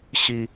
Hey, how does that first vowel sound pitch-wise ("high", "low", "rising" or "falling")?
low